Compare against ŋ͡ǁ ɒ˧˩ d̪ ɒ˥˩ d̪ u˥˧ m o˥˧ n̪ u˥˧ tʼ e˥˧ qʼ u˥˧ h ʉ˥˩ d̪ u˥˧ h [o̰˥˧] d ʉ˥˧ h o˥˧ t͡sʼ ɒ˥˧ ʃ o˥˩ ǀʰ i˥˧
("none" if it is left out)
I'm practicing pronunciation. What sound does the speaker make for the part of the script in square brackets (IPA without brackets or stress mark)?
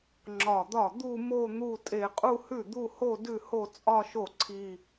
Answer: o˥˧